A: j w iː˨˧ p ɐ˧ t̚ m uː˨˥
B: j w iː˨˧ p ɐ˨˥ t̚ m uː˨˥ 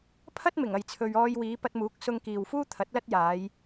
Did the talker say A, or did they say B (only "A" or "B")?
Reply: A